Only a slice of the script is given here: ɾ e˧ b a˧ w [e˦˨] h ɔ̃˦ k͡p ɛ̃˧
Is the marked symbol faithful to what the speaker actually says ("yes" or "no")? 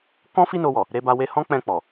no